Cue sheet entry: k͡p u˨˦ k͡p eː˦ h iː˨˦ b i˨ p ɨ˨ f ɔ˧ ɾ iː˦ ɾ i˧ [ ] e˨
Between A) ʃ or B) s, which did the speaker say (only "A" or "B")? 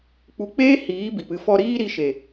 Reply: A